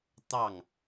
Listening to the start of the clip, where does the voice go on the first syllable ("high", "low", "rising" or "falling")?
falling